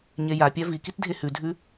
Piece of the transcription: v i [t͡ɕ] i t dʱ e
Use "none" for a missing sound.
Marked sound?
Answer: k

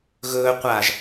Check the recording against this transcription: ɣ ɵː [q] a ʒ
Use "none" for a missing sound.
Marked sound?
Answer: qʷ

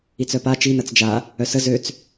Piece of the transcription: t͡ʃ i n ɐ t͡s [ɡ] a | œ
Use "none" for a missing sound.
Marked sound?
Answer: d͡ʒ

